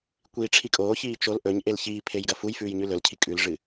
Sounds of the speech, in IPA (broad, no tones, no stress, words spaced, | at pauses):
kʷiːʈ͡ʂʰikʼoːçiː t͡ʃol ʔɵɲʔel çiːpʰej ɡɐfujfʉːj ɲʉlɵlcʰi kʼʉlʐɨ